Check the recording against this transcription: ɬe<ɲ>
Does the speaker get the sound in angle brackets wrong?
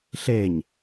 no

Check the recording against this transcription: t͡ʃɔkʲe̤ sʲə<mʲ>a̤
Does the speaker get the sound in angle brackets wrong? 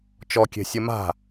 yes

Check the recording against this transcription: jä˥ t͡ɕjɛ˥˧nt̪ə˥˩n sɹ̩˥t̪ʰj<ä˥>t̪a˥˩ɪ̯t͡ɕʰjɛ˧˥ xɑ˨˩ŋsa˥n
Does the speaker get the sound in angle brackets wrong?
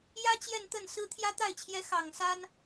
no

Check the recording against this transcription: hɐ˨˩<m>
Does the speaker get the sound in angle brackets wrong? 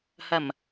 no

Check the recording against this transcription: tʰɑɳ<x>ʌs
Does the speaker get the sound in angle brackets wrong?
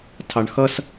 no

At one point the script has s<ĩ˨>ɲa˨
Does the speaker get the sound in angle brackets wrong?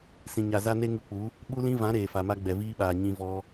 no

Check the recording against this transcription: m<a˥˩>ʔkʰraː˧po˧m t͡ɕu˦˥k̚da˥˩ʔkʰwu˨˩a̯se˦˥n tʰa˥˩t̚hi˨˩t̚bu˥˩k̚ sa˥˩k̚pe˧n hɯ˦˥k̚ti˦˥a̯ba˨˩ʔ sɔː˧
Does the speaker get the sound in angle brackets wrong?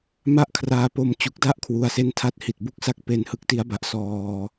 no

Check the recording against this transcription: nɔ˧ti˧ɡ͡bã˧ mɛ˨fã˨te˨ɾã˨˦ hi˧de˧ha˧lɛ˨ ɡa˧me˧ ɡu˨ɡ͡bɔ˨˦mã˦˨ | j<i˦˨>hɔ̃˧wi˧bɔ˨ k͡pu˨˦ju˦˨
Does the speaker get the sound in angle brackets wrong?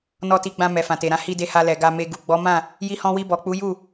yes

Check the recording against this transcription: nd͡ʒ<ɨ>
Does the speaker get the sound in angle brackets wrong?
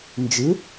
no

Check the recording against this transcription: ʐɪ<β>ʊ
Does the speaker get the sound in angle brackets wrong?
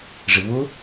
no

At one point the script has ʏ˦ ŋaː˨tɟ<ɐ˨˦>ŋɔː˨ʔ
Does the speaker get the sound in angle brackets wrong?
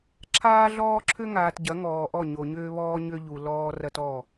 no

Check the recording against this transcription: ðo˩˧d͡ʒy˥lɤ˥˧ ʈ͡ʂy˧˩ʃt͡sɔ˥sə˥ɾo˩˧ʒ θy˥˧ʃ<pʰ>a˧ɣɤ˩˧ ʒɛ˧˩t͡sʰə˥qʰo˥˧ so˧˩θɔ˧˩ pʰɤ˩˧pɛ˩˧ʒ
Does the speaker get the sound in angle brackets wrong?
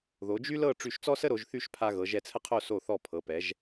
no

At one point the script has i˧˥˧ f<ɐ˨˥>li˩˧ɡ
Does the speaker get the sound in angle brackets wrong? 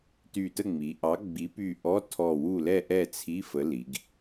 yes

